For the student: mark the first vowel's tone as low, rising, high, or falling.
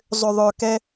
low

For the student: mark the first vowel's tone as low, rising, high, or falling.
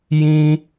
high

